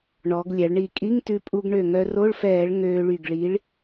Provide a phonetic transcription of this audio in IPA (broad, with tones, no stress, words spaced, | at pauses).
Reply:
ɳɔ˩˧ɡ lʲæ˩˧ɭɳi˧˩ kʼi˧˥˧ŋtʉ˧pʼu˧ɡ ɳø˧˩ŋœ˧ ro˧˥˧ɭfɛː˧˩˧ɭ ŋøː˧ɭy˧˩ɡɭi˨˥ɭ